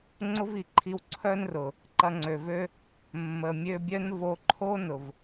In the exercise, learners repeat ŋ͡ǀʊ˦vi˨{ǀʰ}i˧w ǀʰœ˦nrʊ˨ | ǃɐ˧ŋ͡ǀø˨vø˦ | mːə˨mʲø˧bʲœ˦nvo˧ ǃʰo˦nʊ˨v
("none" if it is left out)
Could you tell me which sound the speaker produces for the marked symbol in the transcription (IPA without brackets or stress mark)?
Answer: ǃʰ